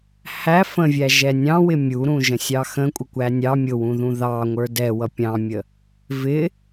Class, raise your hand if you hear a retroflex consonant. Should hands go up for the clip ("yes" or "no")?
no